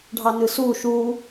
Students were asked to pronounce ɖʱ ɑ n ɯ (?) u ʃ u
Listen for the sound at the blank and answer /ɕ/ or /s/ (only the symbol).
s